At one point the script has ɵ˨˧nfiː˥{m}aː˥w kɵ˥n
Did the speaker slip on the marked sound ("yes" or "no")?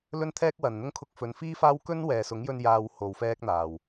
yes